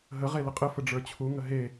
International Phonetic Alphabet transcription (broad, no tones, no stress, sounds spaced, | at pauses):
ɦ ə ʁ e l ə qʼ ə f ə ɖ͡ʐ ə˞ t͡ɕʰ u ŋ ə ɦ e